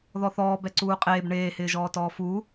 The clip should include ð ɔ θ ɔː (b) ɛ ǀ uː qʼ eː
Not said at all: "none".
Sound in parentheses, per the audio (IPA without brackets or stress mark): b